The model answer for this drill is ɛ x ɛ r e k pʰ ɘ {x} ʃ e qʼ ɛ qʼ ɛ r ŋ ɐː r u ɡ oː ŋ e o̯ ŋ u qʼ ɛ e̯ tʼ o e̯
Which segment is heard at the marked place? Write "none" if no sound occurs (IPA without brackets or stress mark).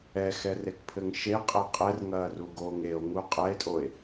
ŋ